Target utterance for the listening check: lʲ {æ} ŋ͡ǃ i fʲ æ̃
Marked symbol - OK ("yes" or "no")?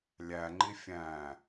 yes